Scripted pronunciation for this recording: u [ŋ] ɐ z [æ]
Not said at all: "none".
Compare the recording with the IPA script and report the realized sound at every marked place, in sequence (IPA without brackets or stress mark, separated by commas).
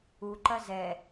ǃ, ɛ